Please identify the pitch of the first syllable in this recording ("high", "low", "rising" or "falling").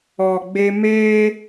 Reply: low